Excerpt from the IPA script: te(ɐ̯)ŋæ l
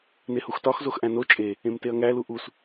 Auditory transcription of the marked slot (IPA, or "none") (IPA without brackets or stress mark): ɐ̯